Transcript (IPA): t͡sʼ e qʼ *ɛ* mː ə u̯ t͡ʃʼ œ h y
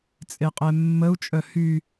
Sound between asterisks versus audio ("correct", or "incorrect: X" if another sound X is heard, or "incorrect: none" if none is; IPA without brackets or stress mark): correct